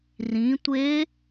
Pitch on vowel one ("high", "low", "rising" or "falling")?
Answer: rising